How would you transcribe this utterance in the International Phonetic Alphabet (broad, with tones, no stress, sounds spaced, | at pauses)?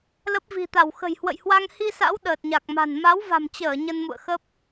l ə˦˥ p̚ v i̤˨˩ t̪ a˧˩ w x ə̤˨˩ j h w ə̰˧˨ j h w a˧ ŋ h i˧ s a̰˧˥ w ɗ əː˨˩ t̚ ɲ a˨˩ k̚ m a̤˨˩ n m a˨˦ w v a̤˨˩ m t͡ɕ əː˧˩ ɲ ə˧ n m ṵ˧˨ ə̯ x ə˦˥ p̚